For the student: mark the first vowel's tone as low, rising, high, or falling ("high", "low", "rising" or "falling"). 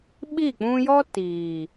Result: falling